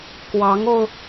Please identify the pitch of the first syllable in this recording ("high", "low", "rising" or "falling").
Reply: rising